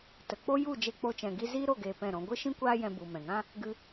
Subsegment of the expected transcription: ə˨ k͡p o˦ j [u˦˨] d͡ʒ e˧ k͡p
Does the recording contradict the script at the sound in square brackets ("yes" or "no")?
no